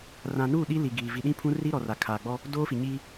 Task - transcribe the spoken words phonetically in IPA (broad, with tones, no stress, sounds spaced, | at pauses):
r ã˨ n uː˦˨ ɗ i˦ l i˨ ɡ iː˨ v i˨ ɗ ĩ˦ pʰ ũ˦ r iː˦ ɾ ɔ˨ r aː˨ kʰ aː˨ ɡ͡b ɔ˦ | d oː˦ f i˨ ɲ iː˦